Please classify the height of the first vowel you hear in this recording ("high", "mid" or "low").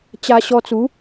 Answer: low